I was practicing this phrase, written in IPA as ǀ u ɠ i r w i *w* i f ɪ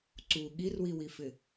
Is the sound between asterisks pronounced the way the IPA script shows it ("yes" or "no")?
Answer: yes